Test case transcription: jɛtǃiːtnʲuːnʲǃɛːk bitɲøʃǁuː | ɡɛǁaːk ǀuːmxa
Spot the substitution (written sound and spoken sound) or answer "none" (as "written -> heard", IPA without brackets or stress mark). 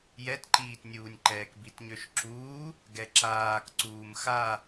none